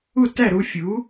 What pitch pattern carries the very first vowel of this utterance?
falling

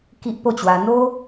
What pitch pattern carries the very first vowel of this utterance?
high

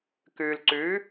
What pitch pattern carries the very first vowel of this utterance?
low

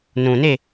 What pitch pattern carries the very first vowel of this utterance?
low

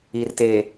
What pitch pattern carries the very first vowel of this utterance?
low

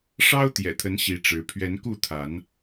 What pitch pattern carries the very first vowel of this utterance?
high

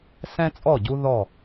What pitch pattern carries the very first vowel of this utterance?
high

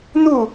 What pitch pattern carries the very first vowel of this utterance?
falling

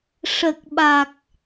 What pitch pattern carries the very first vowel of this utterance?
low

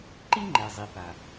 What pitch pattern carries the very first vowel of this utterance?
high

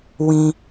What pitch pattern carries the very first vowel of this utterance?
low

